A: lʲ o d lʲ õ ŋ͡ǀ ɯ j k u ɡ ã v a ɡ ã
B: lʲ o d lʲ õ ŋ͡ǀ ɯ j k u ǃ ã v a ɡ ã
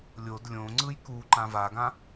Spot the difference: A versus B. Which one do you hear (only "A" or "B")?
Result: B